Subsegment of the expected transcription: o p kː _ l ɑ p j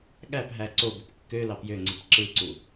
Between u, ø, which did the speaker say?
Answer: ø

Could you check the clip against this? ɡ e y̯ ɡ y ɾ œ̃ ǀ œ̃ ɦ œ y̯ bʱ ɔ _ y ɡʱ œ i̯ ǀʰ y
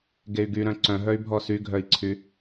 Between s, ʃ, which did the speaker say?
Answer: s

